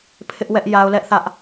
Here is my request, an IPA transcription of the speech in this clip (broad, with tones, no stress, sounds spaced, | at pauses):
pʰ ɪ˦ ʔ w ɛ˦ ʔ j a˦ ʊ̯ l ɛ˦ ʔ θ ä˦ ʔ